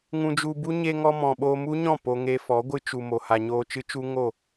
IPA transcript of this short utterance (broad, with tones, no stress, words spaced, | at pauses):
ŋũ˧d͡ʒu˧bu˦ ɲe˧ŋɔ˧mɔ̃˨ ɓo˧mu˦ɲɔ̃˦˨ po˧ŋe˧fɔ˨˦ɡʷɨ˦ t͡ʃu˨mo˨ha˨ ɲoː˧t͡ʃɨ˦t͡ʃu˦ŋo˦˨